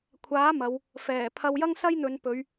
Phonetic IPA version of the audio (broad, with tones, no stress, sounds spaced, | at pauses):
kʷʰ aː˨˥ m ɐ˨˧ w | f ɛː˨˩ pʰ ɐ˧ w j ɐ˥ ŋ s ɐ˥ j n̪ ɵ˨˧ n p ɵ˨˧ ɥ